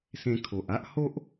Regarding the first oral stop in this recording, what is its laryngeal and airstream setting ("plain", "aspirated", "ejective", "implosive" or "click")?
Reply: aspirated